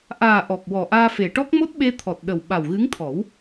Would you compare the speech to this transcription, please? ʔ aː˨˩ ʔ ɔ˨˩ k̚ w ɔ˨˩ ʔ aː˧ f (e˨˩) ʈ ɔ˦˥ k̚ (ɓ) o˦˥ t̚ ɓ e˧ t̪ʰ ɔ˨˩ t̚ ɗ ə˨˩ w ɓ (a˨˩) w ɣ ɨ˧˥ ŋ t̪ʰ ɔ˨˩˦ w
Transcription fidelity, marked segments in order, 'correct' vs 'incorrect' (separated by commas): correct, incorrect, correct